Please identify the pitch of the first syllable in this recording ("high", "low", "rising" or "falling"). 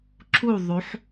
falling